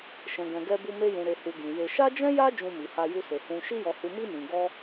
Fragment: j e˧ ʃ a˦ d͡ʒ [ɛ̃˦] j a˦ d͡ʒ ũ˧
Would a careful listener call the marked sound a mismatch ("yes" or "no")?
no